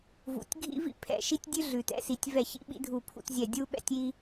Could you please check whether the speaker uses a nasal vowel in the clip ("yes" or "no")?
no